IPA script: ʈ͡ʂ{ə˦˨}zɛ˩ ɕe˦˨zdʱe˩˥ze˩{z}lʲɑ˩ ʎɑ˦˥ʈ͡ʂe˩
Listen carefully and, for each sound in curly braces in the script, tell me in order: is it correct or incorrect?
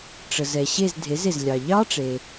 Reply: incorrect, correct

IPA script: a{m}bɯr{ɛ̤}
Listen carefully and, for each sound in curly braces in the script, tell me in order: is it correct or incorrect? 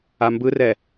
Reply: correct, incorrect

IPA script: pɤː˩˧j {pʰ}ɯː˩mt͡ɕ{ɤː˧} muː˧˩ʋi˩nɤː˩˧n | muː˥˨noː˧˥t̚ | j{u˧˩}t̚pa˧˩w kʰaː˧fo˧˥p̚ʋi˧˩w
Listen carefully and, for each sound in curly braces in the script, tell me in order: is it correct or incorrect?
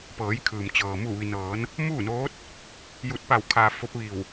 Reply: incorrect, incorrect, correct

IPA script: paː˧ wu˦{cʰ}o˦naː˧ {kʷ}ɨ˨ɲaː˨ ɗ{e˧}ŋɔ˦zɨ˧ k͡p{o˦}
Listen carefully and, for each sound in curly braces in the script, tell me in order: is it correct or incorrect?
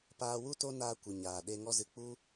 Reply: incorrect, correct, correct, incorrect

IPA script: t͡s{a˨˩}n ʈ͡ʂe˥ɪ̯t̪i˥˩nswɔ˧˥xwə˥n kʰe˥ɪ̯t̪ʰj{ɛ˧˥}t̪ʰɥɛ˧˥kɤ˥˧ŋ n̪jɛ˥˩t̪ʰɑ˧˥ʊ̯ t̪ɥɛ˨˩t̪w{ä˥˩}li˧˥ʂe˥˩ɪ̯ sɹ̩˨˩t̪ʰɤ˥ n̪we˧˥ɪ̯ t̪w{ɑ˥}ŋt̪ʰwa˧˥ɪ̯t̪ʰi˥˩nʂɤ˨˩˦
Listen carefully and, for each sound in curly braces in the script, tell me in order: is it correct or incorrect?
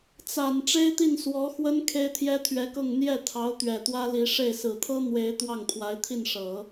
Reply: correct, incorrect, incorrect, incorrect

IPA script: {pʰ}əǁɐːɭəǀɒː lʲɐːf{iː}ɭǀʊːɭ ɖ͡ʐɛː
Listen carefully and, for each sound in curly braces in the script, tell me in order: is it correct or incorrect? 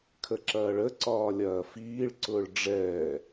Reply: incorrect, correct

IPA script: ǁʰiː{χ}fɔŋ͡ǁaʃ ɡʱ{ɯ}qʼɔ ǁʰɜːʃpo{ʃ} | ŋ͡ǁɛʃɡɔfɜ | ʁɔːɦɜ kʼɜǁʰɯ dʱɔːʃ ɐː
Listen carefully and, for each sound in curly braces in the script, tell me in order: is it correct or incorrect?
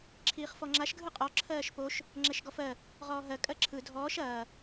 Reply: correct, correct, correct

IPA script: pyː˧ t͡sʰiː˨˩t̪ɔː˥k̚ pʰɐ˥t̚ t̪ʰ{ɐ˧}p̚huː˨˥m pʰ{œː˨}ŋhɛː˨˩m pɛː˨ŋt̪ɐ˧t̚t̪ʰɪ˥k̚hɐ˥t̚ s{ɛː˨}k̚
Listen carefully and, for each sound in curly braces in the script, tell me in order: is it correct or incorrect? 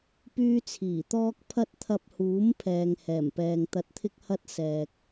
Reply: correct, incorrect, correct

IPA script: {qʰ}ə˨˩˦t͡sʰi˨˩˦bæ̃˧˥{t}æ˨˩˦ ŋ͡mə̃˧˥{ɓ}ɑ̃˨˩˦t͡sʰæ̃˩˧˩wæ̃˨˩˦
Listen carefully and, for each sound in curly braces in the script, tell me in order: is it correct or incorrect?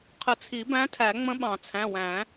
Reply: correct, incorrect, correct

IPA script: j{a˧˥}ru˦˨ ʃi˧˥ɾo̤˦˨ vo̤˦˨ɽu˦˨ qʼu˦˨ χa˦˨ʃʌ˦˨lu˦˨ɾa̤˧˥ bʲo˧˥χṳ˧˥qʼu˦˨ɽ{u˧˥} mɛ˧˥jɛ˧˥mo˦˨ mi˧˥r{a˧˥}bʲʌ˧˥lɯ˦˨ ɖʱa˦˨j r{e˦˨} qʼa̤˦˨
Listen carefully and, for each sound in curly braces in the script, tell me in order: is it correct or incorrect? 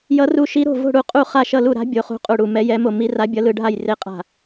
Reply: incorrect, incorrect, correct, correct

